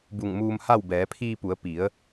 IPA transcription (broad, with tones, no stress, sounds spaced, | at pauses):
b u˧˩ ŋ m uː˧ m h a˥˨ w b ɛː˩˧ pʰ iː˧ p u˩˧ ə̯ p i˩˧ ə̯